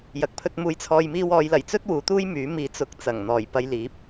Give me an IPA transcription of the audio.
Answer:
j ɐ˨ k̚ pʰ ɵ˧ t̚ m uː˧ j t͡sʰ ɔː˧ j m iː˧ w ɔː˨˧ j l ɐ˨˩ j t͡s ɵ˥ t̚ w uː˨˥ t̪ uː˥ j m yː˨˥ m iː˧ t͡s ʊ˧ k̚ t͡s ɐ˨˩ ŋ n̪ ɔː˨˩ j p ɐ˧ j l iː˨˥ p̚

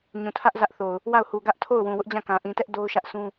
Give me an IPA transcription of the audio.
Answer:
ɲ ũ˨ tʰ ä˦ ʔ z ä˦ ʔ θ o˨ ʊ̯ | w a˦˨ ʊ̯ h u˨ ɡ ä˦ ʔ tʰ o˦˨ ʊ̯ w ũ˨ w ʊ˦ ʔ d͡ʑ ã˦˨ k ã˨ ʔ ĩ˨ t ɛ˦ ʔ d o˦ ʊ̯ ʃ ä˦ ʔ s ũ˦

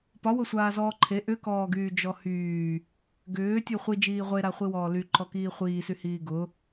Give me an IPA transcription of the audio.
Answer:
p ɒ w ʊ sʷ aː z ɔː ǃʰ e ʔ ʏ k ɔː ɡ yː d͡ʒ ɔ h yː | ɡ ʏː tʲ u χʷ i d͡ʒ iː ʁʷ e ɾ a χʷ i w ɔː l y ǃ ɔ k iː χʷ iː s y h iː ɡ ʊ

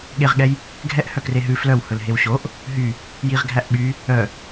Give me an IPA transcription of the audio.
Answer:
ɠ e ʁ ɠ ɛ j | ɡʱ ɛ ʔ h œ k r e ɦ ʉ f l œ w h ɵ l ɦ e w ɕ o ʔ | ɦ y | j i ʁ ɡʱ æ ʔ ɓ y | œ

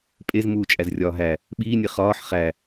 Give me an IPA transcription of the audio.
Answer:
pʼ e z m uː t͡ʃʼ æ z rʲ ɒː ɦ æ | ɓ iː nʲ e χ ɒː ħ χ æ

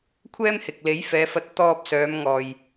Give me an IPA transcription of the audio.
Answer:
kʷʰ ɛː˥ m h ɪ˨ k̚ l e˨˥ j f ɛː˨˧ f ɐ˧ t̚ t̪ ɔː˧ p̚ s œː˨˧ m ŋ ɔː˧ j

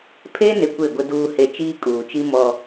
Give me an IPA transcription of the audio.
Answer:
pʰ e˦ n ɪ˨ kʷ e˦˨ ɡʷ ɪ˦ d uː˦ h e˦ t͡ʃ iː˦ kʼ uː˨ t͡ʃ i˦ m ɔ˦

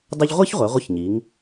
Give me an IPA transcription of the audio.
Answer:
dˤ ə˥ ʎ ʁʷ i˥ ç ʁʷ ɛ˩˧ ʁʷ ə˧˥˧ ç ɲ i˩˧ ŋ

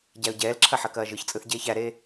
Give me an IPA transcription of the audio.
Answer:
ɟ æ ʊ̯ ɟ ɛː l ǁʰ ɐ ħ ɐ k ɐː ʒ ɯ ç t͡sʼ ɯ θ ɟ eː ç æ ɾ eː

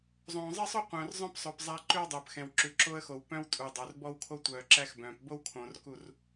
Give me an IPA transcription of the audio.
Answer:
zˤ õː˨ zˤ ɛ˦ sˤ o˦ qʷ œ̃ː˨ r zˤ œ̃˦ p sˤ ɵː˨ p zˤ æ˦ ǃ ʉ˦ w dˤ ɵː˨ p x ɛ̃˨ w ǁ ʉ˨ ǁ o˦ ə̯ x o˨ w p œ̃˦ w tʼ u˨ dˤ o˨ r b ɔ˦ w kʰ o˦ tʷ œː˨ ǁ æ˦ x b œ̃ː˨ p b o˦ w kʰ õː˨ r k u˦˨ r

